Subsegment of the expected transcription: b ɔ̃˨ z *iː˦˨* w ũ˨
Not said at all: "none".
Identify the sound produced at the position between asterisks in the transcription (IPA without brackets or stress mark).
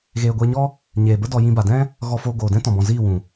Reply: iː˦˨